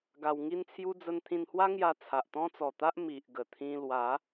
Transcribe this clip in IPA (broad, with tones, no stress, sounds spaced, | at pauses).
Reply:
ɡ a˧ w ŋ i˦ n t͡sʰ j u˦ d͡z ə˧ n t̪ʰ ĩ˧ n h w a˦ ŋ j a˧ t͡sʰ a˨ ʔ t̪ ɔ̃˦ t͡s ɔ˨˩ t̪ a˦ ʔ m i˨ ʔ ɡ ə˨˩ t̪ʰ ĩ˧ l w a˨˦